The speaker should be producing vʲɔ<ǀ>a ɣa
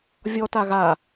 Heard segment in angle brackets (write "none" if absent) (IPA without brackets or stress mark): t